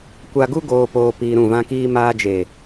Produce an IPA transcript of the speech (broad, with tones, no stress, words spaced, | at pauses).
kʷa˧ɡu˦ ɡoː˧poː˧ piː˧ɾũ˦˨vã˦kiː˦ maː˧d͡ʒe˨